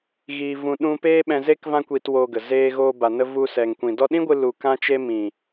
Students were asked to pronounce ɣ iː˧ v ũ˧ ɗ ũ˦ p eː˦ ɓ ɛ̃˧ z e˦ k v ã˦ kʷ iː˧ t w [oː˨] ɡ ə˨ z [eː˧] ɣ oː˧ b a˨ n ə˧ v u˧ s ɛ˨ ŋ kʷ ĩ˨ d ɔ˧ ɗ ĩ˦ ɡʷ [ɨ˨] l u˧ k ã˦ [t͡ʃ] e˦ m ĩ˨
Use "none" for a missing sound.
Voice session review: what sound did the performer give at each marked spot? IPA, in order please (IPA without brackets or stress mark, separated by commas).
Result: oː˧, eː˧, ɨ˧, t͡ʃ